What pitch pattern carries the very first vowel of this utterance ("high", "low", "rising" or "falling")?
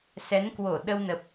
rising